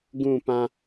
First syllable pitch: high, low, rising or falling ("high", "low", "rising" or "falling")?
falling